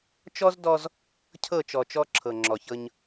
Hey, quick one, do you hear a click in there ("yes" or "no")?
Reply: yes